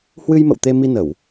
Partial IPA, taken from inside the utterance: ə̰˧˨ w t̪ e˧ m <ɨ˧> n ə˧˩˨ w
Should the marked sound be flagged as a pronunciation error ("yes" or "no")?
yes